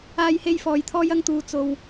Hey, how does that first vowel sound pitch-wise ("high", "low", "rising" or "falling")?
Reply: high